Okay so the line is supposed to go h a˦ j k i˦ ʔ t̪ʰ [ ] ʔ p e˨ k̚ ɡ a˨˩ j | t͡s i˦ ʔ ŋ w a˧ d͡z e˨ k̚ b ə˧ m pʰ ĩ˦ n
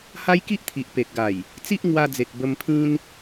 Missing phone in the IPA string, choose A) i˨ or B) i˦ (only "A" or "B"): A